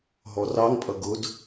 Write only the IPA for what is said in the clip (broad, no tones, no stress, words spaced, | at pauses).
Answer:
ɦɔrɑŋpʼʌ ɡʊd